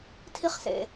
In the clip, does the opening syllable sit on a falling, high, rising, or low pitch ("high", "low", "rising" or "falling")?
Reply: high